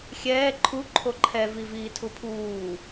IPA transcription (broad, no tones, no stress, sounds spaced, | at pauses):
xʲ ɛː ǃʰ u ǃʰ o ǃʰ ɛ v i v iː tʰ u pʰ uː